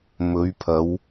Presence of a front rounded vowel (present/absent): absent